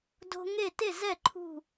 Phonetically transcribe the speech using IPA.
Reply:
do̤˧ŋe˥˩ te˥˩ zɛ˥˩ ǃʰṳ˥˩

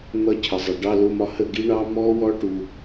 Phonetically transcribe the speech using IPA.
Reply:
n̪ʌ˦˥cʰə˨ zˤʌ˨ ɖɑ˧˥˧lʊ˧˥˧mɒ˦˥ hə˥˨ ɡi˦˥ɳɑ˦˥ mɔ˦˥wɔ˦˥ʈu˨

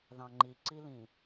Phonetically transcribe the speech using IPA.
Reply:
ðɑ̃ŋ͡ǃiǀilĩ

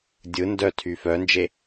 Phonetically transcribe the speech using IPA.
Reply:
dʲɯ ndœ tʰyfœnd͡ʒe

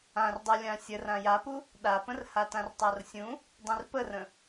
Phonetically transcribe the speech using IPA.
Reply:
ãrdˤulʲã sʲə rãjapu | ɗapə̃r hatãrtˤarsʲũ | dˤĩrpərə̃

